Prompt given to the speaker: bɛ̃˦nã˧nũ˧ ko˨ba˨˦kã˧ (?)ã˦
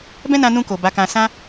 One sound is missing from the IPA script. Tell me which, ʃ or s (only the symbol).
s